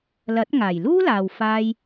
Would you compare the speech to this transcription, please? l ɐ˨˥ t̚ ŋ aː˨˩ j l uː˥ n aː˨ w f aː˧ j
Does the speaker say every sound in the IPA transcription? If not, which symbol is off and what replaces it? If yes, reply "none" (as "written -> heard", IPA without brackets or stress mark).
n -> l